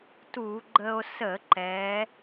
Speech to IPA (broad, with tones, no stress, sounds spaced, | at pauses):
t u˧˩˧ ɡ͡ǃ ə˧ o̯ s ə˧˩˧ ǃ ɛ˩˧